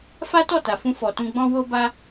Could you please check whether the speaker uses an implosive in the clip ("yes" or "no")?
no